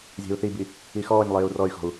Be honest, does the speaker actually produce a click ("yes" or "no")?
no